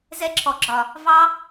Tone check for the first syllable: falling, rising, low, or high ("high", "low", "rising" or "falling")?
high